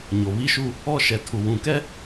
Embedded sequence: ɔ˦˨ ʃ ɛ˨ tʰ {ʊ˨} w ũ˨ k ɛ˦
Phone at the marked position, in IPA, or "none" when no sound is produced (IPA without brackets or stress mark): u˨